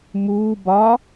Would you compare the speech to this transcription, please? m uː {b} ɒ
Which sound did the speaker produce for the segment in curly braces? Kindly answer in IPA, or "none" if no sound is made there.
b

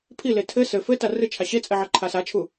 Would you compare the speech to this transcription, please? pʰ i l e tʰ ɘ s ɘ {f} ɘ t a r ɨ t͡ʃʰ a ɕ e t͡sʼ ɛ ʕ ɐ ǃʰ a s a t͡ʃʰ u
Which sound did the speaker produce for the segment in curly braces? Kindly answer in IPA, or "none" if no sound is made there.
f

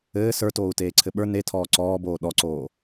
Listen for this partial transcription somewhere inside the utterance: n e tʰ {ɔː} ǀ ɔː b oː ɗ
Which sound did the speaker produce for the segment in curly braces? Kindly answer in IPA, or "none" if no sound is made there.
ɔː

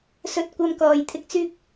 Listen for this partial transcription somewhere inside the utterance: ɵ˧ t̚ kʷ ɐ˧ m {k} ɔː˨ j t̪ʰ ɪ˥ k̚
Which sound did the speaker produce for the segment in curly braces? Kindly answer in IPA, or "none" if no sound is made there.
k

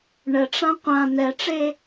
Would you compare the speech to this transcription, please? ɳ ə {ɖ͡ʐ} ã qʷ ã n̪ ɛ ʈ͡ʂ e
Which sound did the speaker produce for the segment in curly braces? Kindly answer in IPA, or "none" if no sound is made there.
ʈ͡ʂ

